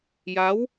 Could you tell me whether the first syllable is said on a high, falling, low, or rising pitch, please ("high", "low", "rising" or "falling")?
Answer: rising